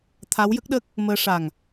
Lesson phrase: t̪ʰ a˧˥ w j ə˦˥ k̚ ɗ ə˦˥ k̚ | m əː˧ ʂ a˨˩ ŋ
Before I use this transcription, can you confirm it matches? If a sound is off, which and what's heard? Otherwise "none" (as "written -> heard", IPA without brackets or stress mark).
none